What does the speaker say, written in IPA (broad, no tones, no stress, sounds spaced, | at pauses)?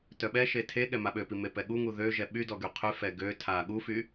t œ ɓ ɛ ʃ e tʰ e ɠ ɛ m a ɓ ø p i m e p ɛ ɠ u ŋ u ð ø ʒ ɛ ɓ y d ɔ ɡ y qʰ y f ɛ ɡ ø tʰ a ɠ u f y